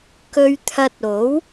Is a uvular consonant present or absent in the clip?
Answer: absent